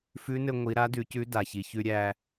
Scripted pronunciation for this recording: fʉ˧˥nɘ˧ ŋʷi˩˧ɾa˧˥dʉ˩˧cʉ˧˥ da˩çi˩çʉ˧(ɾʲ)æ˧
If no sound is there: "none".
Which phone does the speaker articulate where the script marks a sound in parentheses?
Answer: ɾʲ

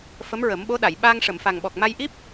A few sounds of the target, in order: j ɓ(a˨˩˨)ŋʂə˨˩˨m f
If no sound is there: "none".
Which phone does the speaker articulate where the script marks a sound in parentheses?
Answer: a˧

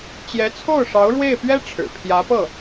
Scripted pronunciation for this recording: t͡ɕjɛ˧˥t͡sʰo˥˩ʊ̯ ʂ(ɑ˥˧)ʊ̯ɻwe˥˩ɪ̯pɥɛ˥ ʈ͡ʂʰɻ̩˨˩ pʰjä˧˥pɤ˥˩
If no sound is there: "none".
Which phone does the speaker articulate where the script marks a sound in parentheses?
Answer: ɑ˧˥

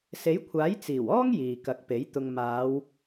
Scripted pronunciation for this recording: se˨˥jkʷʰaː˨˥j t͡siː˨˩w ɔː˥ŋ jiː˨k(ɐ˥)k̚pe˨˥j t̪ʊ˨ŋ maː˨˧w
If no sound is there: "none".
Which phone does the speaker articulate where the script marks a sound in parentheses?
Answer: ɐ˨˥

